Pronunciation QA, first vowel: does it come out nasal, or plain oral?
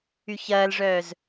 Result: oral